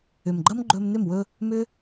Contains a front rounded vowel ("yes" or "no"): yes